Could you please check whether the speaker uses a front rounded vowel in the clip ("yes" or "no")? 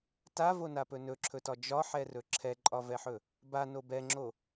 no